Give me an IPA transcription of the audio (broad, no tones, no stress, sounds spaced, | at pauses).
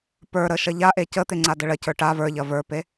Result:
p ə˞ ɾ ə ʃ ɐ ʎ a ʔ e c ə t̪ e ŋ͡ǀ a d ə ɭ ɐ c ə˞ ʈ a v ə˞ ʎ ɐ v ə˞ p e